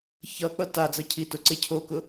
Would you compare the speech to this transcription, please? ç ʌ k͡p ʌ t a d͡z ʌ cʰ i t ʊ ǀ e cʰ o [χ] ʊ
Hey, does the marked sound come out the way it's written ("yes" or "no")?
no